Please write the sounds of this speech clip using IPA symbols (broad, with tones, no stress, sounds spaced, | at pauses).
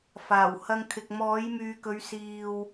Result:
f aː˨˩ w h ɐ˧ ŋ kʰ ɪ˨ k̚ m ɔː˨˥ j m yː˨ k ɵ˨˧ ɥ s iː˨ w